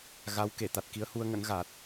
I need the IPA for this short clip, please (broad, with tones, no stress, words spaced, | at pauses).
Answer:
ɣa˨˦wke˧˩ t̪a˨˩t̚ki˨˦ə̯hu˧ə̯ŋə̰˧˥n ɣa˨˩t̚